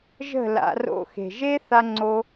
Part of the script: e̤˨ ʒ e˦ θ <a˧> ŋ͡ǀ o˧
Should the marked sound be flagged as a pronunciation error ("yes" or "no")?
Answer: no